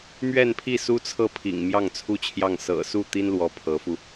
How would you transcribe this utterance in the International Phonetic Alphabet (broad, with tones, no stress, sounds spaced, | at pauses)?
m ɥ ɛ˥˧ n pʰ i˥˩ s u˥ t͡sʰ ɤ˥˩ pʰ ḭ˨˩ ŋ m j ɑ˥˩ ŋ t͡sʰ u˥ t͡ɕʰ j ɑ˥˩ ŋ s ɤ̰˨˩ s u˥˩ t̪ i˥ n l w ɔ˧˥ pʰ ɤ˧˥ f u˧